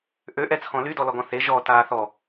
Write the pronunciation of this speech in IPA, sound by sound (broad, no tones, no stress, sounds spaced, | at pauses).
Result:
ʔ ø ʔ ɛ t͡sʰ ɔ̃ l y d ɔ l ɔ ɡ ɔ̃ θ e ʒ ɔ t aː θ ɔ